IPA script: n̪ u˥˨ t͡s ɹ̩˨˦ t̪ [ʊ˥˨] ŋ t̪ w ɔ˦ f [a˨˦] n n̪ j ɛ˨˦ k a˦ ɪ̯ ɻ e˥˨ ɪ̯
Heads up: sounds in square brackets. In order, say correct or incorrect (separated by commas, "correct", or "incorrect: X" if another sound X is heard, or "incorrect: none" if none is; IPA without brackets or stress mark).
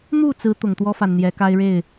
incorrect: ʊ˨˩, incorrect: a˨